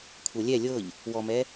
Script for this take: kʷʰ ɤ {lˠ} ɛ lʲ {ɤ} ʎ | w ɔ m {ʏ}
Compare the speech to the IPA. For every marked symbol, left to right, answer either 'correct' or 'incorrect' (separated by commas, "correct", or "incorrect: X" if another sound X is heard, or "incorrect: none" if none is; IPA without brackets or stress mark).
incorrect: lʲ, correct, incorrect: ɛ